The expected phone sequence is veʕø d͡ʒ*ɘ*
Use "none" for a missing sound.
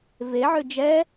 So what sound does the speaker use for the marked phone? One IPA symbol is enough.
ɛ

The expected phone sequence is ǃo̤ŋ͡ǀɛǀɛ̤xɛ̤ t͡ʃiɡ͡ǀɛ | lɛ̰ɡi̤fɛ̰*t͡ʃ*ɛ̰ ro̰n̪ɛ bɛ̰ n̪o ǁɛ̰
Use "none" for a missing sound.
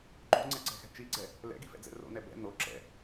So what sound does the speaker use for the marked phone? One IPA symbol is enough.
d͡z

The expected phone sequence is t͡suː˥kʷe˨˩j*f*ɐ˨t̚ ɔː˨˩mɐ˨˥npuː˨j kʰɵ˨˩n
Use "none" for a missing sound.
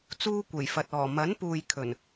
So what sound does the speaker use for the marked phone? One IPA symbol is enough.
f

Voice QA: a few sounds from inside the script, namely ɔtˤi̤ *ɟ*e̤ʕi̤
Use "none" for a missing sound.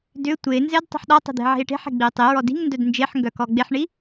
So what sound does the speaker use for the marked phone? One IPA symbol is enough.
d̪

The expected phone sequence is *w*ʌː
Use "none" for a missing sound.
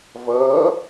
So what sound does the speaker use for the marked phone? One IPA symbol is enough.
v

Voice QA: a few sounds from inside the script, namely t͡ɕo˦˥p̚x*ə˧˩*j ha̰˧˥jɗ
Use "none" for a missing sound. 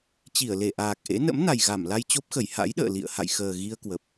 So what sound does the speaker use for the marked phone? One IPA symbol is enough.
ə˧˩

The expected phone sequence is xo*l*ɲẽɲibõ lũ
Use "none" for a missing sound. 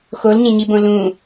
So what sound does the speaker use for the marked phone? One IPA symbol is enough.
l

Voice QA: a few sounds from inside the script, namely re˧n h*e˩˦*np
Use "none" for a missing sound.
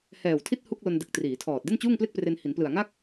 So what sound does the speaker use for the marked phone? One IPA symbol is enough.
i˩˦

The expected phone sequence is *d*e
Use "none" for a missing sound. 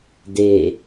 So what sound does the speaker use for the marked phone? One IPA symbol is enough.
d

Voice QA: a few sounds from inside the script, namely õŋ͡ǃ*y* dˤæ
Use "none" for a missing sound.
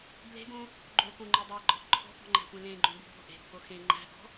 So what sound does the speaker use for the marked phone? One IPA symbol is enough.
y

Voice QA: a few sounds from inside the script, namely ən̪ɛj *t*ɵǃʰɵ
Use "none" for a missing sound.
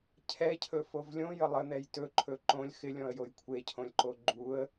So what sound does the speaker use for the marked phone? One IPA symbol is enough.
t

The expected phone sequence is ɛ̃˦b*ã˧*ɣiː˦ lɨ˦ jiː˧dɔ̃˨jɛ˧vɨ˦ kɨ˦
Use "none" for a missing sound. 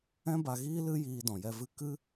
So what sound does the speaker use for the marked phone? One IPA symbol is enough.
a˧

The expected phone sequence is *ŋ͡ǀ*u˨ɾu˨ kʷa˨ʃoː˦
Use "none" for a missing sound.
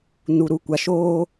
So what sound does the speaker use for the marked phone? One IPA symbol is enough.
n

